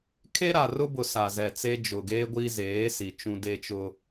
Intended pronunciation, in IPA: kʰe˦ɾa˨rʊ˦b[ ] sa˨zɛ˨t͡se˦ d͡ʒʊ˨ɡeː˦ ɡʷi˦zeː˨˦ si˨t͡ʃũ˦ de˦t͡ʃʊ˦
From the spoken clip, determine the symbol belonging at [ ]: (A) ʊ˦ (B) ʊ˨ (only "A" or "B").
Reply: B